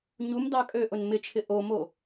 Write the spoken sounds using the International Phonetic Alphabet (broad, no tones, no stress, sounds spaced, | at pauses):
ɲ u m d ɑ kʼ ø ʔ ʊ n m ɪ t͡ʃʰ ɪ ʔ o m o